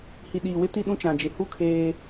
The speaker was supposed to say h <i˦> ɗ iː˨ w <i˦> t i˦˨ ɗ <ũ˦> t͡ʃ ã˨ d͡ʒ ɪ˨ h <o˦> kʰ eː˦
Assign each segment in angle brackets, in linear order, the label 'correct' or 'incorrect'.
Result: incorrect, incorrect, correct, incorrect

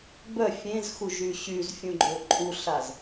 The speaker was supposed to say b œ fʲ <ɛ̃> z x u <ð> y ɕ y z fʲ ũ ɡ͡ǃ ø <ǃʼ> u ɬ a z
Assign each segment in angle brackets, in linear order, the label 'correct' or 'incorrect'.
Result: incorrect, incorrect, correct

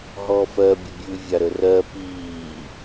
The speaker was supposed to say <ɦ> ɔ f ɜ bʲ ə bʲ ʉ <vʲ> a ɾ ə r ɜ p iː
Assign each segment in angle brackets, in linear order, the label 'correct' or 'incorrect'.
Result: correct, correct

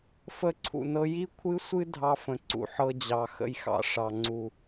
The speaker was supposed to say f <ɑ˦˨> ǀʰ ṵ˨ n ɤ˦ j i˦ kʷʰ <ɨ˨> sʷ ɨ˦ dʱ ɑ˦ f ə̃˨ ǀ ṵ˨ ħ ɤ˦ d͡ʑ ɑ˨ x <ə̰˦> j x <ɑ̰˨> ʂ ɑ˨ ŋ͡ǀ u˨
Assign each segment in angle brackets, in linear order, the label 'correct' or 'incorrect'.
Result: incorrect, incorrect, correct, correct

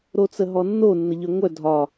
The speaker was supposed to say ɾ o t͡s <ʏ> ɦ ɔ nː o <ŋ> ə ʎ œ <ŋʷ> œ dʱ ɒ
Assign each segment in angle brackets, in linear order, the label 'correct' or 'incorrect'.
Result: incorrect, incorrect, correct

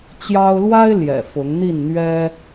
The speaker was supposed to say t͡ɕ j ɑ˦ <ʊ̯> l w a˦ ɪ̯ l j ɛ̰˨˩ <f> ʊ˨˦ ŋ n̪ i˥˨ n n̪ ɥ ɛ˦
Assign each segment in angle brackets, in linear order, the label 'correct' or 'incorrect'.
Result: correct, correct

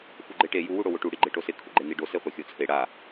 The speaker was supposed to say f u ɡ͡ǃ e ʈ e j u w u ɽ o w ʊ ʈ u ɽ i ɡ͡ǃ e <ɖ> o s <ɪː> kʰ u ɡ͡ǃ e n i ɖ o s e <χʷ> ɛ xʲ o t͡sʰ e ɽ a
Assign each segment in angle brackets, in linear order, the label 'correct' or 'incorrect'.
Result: incorrect, incorrect, correct

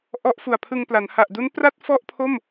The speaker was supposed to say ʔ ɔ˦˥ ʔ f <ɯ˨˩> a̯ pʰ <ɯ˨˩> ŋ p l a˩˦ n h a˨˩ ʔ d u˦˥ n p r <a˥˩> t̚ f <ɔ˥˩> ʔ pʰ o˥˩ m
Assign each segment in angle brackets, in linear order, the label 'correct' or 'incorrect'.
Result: incorrect, incorrect, correct, correct

